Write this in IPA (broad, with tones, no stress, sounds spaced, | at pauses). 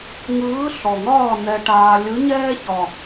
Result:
ŋ ɯː˧˥ ɬ ɔ˨˩ ŋ ɒː˥˨ n ɛ˧ ʈ aː˧ lʲ ɯ˧˥ ɲ ɛː˥ ç ɒ˨˩